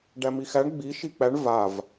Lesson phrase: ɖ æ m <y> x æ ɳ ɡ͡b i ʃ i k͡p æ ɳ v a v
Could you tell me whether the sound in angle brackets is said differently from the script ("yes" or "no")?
yes